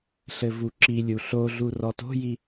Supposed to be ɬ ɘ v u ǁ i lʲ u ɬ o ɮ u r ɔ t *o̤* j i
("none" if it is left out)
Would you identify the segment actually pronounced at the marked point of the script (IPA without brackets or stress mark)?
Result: o̤